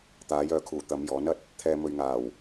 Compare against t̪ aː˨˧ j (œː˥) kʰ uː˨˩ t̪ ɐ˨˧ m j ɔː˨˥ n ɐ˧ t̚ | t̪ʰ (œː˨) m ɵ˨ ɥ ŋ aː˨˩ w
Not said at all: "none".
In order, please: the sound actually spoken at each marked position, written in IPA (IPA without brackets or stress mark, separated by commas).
œː˨, ɛː˨